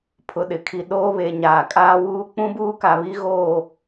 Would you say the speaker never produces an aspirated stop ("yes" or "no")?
no